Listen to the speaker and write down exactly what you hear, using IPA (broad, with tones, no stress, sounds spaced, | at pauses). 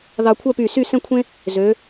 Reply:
ð ɑ˧ kʷʰ œ˥˧ p y˧˩ s y˥˧ s ɛ̃˥˧ kʷʰ ẽ˥ | z ø˩˧